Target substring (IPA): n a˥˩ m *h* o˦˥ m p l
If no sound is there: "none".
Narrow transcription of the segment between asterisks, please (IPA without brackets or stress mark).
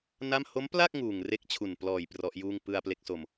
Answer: h